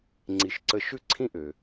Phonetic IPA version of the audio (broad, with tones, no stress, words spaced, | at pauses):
ŋ͡ǀi˨ʃǀə˦ ʃʉ˥ǀʰĩ˥ʔø˩